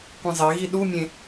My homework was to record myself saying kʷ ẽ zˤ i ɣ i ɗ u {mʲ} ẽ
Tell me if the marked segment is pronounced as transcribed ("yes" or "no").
yes